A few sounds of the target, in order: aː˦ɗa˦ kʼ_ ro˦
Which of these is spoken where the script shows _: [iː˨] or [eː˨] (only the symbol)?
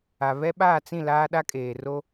eː˨